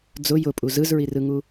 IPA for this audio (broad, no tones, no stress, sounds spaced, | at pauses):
d͡z ʊ j ʊ pʼ u z ɯ z ɹ i r ɯ ŋ u